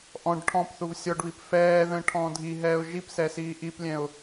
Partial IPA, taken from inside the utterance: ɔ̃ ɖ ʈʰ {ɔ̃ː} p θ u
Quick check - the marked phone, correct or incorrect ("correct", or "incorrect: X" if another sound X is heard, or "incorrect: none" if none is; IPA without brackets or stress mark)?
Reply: incorrect: ɔ̃